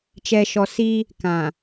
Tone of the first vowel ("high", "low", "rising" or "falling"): low